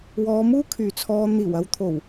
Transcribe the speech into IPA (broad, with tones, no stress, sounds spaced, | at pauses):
w ɔː˨˧ m uː˥ kʰ yː˨ t͡sʰ ɔː˧ n̪ iː˨˩ w ɐ˧ w t̪ʰ o˨˩ w